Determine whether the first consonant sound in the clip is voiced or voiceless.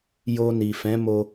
voiced